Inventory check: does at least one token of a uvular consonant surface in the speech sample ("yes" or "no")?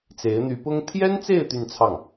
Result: no